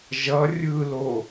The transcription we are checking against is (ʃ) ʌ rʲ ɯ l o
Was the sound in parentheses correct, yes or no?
no